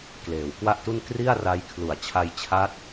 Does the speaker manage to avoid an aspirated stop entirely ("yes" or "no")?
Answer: no